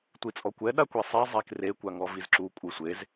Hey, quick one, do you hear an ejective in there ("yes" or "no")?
yes